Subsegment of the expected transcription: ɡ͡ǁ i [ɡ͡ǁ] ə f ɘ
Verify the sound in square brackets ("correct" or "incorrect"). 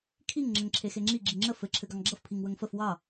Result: incorrect